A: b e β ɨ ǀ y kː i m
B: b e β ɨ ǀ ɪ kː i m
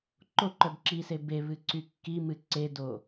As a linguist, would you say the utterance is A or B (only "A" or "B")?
A